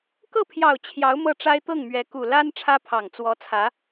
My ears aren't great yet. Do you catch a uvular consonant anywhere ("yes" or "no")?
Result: no